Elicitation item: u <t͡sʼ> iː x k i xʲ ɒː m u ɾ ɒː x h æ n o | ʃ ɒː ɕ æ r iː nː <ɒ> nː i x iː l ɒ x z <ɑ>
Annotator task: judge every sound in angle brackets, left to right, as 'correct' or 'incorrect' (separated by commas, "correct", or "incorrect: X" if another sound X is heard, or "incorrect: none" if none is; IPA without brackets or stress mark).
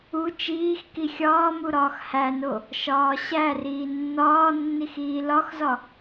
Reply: incorrect: t͡ʃ, incorrect: ɒː, incorrect: ɒ